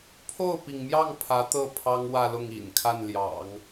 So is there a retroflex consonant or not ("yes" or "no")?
no